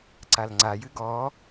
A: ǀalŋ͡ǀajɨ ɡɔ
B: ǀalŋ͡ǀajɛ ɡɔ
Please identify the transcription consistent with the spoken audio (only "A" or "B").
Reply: A